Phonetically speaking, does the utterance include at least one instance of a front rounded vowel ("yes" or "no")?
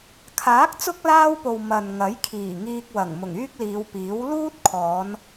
yes